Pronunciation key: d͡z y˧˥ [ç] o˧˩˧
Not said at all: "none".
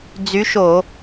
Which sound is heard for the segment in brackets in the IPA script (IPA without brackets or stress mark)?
ʃ